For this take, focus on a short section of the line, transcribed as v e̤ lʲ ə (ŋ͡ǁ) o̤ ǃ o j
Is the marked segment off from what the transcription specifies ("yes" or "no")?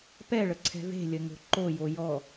yes